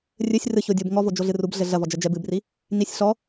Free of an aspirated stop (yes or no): yes